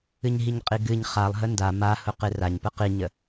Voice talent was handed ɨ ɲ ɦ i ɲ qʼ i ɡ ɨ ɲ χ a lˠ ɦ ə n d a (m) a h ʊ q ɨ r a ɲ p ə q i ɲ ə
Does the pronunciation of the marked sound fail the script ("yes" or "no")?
no